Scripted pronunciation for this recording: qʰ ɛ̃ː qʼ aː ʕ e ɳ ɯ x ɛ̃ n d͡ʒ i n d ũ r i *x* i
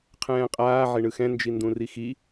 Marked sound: correct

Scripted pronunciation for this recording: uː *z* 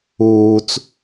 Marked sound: incorrect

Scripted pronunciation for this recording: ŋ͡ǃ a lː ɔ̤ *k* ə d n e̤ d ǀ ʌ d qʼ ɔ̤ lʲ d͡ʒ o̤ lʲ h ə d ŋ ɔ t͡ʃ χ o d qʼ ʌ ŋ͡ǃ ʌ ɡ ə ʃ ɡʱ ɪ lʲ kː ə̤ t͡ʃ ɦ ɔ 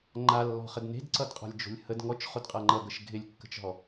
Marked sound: incorrect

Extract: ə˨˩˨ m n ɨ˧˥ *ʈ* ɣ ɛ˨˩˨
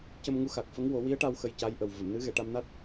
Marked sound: incorrect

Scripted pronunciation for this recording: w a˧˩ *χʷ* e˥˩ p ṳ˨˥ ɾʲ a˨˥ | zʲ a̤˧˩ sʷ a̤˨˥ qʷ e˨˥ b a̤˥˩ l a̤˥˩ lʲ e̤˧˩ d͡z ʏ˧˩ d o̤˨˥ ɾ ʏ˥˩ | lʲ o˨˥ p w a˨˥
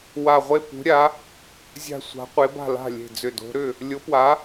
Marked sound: incorrect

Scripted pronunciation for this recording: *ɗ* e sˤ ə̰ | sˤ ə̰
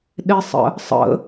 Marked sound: correct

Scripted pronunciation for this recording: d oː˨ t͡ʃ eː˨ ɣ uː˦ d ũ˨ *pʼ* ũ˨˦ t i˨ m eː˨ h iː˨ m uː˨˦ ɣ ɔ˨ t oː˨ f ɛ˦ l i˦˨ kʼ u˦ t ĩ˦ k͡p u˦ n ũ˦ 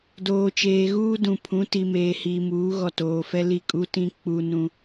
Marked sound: incorrect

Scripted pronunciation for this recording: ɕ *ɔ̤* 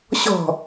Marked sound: correct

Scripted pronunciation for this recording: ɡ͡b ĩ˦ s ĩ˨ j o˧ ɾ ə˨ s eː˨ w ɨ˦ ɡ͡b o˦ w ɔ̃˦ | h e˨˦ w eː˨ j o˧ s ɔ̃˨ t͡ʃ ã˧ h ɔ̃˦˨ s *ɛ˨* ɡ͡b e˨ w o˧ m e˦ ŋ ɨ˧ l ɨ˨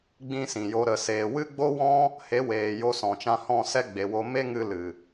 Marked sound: incorrect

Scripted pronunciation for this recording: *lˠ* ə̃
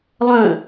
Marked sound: correct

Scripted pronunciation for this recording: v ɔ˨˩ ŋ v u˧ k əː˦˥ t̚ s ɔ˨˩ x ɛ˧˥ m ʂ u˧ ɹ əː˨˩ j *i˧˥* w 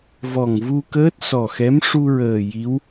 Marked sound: correct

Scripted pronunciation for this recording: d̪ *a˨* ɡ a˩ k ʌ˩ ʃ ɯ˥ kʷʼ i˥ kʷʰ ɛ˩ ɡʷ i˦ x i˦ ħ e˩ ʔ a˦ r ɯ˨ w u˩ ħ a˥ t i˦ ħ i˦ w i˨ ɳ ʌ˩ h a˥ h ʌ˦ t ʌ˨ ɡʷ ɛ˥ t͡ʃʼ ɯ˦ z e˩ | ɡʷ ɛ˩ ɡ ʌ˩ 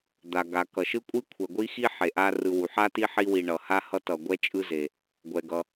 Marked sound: incorrect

